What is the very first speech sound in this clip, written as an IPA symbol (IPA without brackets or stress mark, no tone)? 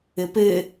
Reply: ɘ